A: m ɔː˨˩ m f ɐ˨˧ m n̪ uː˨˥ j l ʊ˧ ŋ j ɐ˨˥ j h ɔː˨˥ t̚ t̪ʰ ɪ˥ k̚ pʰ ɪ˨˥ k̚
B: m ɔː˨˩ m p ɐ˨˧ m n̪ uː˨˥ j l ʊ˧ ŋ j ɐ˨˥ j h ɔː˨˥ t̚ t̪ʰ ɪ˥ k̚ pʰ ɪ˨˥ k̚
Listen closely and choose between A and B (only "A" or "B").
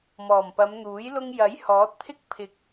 B